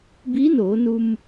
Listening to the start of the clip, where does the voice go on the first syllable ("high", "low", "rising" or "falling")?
rising